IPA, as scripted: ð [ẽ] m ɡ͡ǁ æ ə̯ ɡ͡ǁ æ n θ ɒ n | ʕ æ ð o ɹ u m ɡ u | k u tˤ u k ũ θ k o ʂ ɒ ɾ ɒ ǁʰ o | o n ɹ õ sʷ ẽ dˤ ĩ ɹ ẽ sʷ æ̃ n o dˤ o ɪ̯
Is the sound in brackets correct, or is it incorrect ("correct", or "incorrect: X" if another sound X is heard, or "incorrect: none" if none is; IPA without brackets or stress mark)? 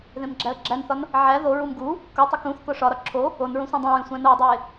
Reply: correct